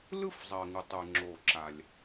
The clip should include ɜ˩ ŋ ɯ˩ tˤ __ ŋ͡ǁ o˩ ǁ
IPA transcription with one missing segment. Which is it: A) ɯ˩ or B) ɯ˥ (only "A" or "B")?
A